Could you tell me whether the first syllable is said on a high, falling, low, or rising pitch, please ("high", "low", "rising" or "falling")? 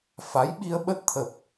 rising